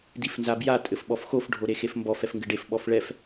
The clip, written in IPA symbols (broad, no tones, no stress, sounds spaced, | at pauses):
d i f n z a b j a tʼ ɘ f ɓ ɔ f x o f ɖʱ o ɾ e x e f m b ɔ f ɛ f ŋ ɡ ɘ ɖ e f ɓ ɔ f ɭ ɛ f